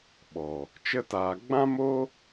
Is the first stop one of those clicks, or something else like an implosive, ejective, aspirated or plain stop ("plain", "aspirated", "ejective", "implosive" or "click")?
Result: implosive